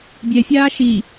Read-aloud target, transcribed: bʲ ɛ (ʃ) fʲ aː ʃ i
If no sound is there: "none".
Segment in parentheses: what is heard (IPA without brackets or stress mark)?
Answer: none